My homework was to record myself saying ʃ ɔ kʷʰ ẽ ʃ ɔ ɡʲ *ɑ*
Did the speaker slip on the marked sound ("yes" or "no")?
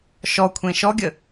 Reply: yes